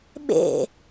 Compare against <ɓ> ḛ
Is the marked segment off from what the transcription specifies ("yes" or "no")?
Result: no